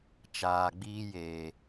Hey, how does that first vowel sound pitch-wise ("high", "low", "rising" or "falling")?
low